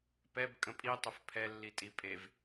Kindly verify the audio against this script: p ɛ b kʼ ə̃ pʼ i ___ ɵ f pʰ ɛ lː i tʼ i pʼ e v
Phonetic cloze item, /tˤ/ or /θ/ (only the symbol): tˤ